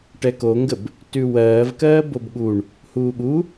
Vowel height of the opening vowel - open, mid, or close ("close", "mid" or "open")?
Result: mid